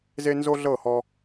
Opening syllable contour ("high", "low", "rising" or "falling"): high